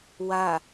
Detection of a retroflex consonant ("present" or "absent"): absent